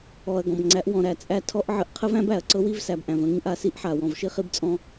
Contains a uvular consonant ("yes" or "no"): yes